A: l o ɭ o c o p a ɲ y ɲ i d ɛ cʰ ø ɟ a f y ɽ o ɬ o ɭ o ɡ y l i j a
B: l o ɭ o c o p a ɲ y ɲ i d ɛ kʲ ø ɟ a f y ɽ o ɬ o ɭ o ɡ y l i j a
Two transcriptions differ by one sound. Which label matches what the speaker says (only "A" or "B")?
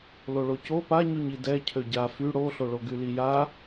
A